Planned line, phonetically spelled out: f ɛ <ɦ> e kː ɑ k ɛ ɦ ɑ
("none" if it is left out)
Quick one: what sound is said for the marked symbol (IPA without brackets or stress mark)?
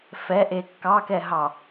ʔ